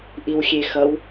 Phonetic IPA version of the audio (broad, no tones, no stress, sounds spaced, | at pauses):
ʔ i w xʲ e x ʌ w